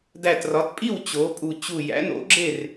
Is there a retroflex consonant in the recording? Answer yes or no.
no